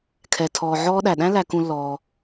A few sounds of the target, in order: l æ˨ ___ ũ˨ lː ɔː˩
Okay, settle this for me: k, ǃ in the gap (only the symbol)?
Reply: k